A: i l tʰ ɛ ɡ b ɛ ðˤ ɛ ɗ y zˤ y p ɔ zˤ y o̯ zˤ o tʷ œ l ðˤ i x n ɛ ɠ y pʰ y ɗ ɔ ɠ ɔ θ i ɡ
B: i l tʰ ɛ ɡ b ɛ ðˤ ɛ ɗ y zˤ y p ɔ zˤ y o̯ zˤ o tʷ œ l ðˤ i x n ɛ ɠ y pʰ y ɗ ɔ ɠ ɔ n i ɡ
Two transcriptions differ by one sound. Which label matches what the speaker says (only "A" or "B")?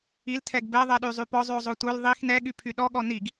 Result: B